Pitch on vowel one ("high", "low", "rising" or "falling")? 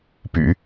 low